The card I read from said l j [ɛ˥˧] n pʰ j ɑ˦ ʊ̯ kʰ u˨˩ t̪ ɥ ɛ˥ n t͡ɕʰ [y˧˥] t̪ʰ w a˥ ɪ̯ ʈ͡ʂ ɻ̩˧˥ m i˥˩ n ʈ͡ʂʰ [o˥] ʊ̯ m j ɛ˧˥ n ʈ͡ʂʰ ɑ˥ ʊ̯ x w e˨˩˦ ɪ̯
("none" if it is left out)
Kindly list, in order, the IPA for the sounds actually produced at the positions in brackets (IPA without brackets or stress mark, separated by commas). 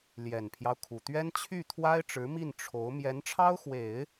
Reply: ɛ˨˩, y˥˩, o˧˥